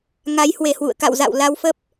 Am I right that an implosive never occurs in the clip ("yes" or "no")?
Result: yes